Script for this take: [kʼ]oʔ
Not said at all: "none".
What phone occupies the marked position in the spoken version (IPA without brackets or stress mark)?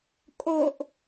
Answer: kʼ